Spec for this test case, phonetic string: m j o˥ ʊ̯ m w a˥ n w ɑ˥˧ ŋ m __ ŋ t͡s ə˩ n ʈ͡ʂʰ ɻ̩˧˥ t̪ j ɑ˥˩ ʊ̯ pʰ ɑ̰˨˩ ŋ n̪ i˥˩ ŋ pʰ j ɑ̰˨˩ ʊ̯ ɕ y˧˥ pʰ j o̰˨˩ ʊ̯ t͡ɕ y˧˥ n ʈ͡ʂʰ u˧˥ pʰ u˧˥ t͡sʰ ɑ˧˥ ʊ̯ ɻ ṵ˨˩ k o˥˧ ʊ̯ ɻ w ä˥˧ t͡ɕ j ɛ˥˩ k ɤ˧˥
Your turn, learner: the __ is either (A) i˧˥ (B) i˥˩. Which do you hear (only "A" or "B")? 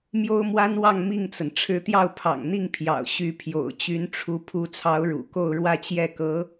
B